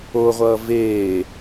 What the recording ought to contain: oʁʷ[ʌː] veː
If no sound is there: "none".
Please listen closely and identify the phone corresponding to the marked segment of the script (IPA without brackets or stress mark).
ʌː